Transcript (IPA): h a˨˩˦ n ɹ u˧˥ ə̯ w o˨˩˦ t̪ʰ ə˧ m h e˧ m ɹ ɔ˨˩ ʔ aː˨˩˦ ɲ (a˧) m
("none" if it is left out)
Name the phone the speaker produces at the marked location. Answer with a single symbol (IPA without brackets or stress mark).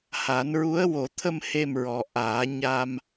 a˧